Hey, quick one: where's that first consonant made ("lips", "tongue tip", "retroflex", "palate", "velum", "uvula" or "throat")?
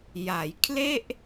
palate